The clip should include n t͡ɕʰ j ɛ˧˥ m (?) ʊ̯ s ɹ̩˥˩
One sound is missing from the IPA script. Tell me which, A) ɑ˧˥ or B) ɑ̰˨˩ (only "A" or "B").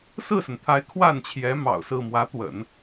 B